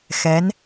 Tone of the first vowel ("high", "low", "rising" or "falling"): rising